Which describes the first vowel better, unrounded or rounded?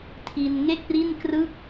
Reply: unrounded